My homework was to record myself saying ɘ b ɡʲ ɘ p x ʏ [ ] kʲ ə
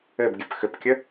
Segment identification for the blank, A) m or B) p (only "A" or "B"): B